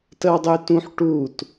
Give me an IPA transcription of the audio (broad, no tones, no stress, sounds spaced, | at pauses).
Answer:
t ə w dˤ y t ũ ħ ʈ u t